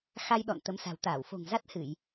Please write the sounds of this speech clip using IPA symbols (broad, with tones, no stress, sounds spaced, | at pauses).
x a˧ j ɗ ɔ̰˧˨ n t̪ ə˨˦ m s a̤˨˩ w t̪ aː˧˩ w f o̤˨˩ ŋ z a˦˥ t̚ h ɨ˧˩˨ j